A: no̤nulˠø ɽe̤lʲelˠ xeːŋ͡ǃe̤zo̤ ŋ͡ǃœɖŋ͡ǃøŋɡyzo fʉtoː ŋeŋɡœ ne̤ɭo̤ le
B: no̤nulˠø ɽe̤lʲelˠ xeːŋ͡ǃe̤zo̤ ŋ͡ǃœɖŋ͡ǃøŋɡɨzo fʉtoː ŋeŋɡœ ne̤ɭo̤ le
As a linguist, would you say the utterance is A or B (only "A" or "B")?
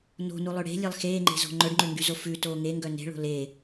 A